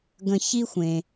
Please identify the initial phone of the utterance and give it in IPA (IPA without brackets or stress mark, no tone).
ɡ